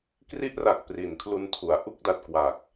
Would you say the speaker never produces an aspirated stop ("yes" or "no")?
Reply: no